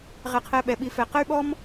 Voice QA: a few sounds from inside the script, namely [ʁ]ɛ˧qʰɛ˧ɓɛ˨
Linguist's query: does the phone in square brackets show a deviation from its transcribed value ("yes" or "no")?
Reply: no